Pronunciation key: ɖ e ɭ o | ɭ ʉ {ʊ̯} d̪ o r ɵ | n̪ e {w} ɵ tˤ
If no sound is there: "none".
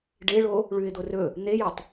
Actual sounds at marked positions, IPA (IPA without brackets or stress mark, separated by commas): ɪ̯, j